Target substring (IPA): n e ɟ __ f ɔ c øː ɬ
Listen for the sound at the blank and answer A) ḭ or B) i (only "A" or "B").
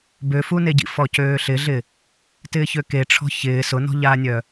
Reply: A